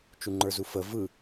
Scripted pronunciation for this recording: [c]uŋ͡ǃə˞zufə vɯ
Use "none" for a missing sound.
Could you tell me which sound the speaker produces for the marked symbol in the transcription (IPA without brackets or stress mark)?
t͡ʃ